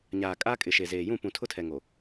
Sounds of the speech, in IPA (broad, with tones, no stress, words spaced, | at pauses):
ɲaː˨kʼa˦kʼɪ˨ ʃe˨zeː˨ jũ˦˨pũ˨ tʰʊ˦tʰɛ˨ŋo˨